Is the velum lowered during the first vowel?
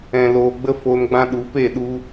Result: yes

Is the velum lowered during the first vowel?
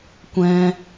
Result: yes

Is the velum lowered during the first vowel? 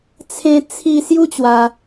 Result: yes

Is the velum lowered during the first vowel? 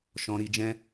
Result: yes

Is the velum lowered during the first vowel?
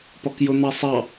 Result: no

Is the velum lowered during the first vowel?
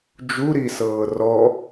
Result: no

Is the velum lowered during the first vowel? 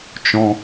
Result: yes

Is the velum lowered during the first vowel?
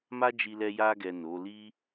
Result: no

